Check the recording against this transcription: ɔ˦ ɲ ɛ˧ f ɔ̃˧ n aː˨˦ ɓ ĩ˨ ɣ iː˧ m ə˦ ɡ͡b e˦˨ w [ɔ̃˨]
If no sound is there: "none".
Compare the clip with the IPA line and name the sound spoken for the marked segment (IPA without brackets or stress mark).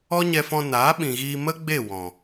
ɔ̃˨